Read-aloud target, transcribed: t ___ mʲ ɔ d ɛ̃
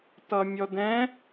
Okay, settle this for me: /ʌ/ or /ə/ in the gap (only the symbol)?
ʌ